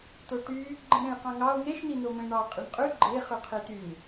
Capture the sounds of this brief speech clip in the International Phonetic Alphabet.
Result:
t̪ o ʈ y | ɡ͡ǃ ẽ ɾ ẽ j q ɑ̃ ŋ ɑ o̯ ŋ e ʃ n̪ i n̪ o m ẽ ɳ ɑ qʼ i ɳ qʼ y ɡ͡ǃ e χ y qʰ i t̪ y ŋ

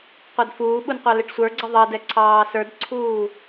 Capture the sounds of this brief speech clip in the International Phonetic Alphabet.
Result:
qʷ ɑ d f uː ɓ u n qʷ ɑ l ɪ ʈ sʷ ə˞ ɡ͡ǀ ʌ ðˤ ʌ d ɛ ǀʰ ɑː s ə˞ d ǀʰ uː

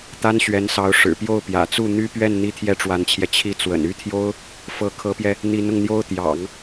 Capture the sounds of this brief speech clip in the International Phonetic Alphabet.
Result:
t̪ a˥ n ɕ ɥ ɛ˧˥ n s ɑ˧˥ ʊ̯ ʂ ɻ̩˨˩ p j o˥˩ ʊ̯ p j ä̰˨˩ t͡s u˥˩ n̪ y˥ p ɥ ɛ˥˩ n n̪ i˥ t̪ʰ j ɛ˥ ʈ͡ʂ w a˧˥ n t͡ɕʰ j ɛ˧ t͡ɕʰ i˥˩ t͡s w ə̰˨˩ n y˥ t̪ʰ j o˥ ʊ̯ | f ɤ˧˥ kʰ ɤ˧˥ p j ɛ˧ | n̪ i˧˥ n ʊ˧ ŋ n̪ j o˥ ʊ̯ t̪ j ɑ̰˨˩˦ ŋ

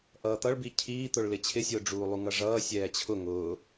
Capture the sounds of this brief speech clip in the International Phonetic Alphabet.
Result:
ʔ ʌː t̪ ʌ ɭ b i cʰ iː t̪ ʊ ɭ l ɪ t͡ɕʰ ɪ sʲ ʊː ɖ͡ʐ uː lˠ u ŋ ʌ ʐ ʌː sʲ ɛː t͡ɕʰ ʊ ŋ ʊː

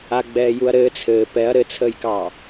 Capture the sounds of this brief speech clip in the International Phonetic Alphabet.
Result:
a ɡ͡b ɛː j u ɐ̯ ɾ ɘː t͡sʰ ɘː p ɛ ɐ̯ ɾ ɘ t͡sʰ əː j k ɑ

